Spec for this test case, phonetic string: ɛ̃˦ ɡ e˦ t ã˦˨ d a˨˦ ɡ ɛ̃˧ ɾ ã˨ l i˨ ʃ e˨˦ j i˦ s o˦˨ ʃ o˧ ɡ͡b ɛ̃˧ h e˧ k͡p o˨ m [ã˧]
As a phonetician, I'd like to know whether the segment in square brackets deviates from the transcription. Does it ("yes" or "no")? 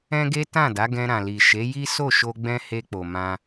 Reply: no